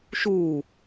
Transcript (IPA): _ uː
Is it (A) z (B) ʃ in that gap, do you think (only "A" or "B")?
B